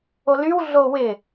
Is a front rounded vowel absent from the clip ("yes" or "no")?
no